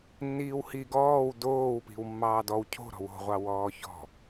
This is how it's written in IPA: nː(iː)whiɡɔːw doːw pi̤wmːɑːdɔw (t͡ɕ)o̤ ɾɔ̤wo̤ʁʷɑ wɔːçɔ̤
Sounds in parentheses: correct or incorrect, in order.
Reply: correct, incorrect

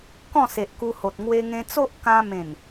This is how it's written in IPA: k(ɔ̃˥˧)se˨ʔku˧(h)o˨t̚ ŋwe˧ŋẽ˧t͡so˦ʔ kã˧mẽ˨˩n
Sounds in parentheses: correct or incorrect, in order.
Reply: correct, correct

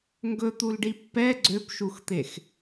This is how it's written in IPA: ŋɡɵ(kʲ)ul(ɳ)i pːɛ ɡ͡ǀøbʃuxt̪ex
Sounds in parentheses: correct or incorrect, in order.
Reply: incorrect, incorrect

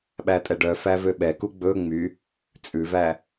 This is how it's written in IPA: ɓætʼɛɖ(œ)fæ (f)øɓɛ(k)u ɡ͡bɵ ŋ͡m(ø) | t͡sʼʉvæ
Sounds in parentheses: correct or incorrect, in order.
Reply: correct, incorrect, correct, incorrect

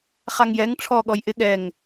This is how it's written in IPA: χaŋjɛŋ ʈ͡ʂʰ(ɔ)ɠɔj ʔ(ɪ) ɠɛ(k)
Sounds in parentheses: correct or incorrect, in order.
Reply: correct, correct, incorrect

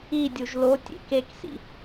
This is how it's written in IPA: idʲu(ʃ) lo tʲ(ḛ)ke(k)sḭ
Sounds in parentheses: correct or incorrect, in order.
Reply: incorrect, correct, correct

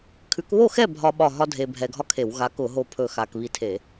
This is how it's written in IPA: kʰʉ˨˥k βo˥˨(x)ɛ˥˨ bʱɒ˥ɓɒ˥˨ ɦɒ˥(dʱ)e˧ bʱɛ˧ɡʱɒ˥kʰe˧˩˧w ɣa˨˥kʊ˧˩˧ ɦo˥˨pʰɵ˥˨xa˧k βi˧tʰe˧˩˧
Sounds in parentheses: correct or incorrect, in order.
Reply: correct, correct

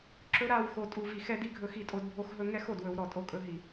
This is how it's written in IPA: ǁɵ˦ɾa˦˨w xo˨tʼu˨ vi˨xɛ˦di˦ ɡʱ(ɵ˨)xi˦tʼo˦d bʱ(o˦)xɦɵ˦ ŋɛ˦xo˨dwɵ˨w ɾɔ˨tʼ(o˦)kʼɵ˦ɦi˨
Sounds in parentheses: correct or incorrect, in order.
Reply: incorrect, correct, correct

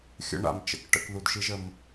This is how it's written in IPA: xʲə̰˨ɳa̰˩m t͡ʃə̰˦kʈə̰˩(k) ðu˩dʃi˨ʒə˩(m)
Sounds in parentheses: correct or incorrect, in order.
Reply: correct, correct

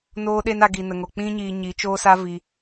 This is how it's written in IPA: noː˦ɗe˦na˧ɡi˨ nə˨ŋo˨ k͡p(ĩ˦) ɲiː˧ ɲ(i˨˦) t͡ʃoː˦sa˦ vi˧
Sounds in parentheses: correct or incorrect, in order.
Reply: incorrect, correct

